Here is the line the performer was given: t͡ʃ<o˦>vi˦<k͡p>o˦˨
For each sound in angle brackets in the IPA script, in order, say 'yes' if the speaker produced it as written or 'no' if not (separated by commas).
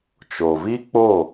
no, yes